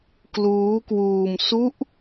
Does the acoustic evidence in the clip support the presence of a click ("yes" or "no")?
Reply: no